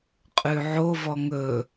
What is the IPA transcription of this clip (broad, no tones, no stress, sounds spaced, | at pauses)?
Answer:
qʼ ʉ ʕ o v ɔ ŋ ɵ